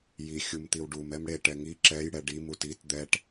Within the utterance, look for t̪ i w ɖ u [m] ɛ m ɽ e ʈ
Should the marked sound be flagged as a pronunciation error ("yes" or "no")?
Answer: no